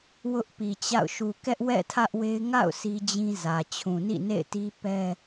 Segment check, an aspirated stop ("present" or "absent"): present